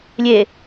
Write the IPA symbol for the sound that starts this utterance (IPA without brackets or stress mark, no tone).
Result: lʲ